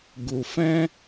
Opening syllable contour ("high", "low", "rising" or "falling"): low